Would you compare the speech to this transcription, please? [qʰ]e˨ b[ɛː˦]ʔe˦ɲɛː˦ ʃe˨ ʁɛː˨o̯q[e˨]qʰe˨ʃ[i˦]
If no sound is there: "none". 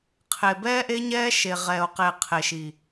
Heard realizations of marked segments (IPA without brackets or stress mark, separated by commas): qʰ, ɛː˦, e˨, i˨